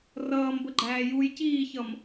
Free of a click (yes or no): no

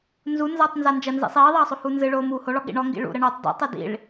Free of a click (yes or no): yes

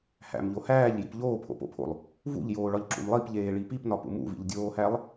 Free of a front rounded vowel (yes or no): yes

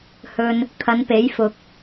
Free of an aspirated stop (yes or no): no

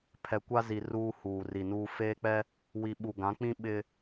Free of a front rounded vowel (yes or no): yes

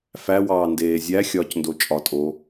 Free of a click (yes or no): yes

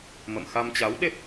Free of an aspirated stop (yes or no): yes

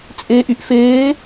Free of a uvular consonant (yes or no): yes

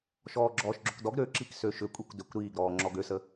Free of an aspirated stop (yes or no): yes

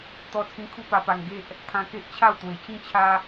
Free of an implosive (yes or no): yes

